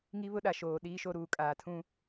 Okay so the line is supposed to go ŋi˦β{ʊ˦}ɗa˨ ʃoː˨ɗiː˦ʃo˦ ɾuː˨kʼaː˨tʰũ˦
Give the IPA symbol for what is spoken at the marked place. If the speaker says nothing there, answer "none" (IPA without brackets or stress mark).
ʊ˦